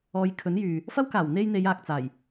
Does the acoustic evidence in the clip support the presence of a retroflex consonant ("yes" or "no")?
no